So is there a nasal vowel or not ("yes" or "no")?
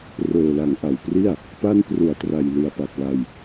no